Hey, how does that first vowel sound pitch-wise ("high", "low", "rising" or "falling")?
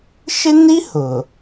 high